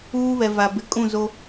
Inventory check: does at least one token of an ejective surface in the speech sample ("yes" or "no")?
yes